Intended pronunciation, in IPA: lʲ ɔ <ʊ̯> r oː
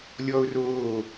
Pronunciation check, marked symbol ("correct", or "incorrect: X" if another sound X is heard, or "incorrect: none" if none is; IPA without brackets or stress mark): correct